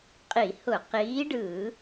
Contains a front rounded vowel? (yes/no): no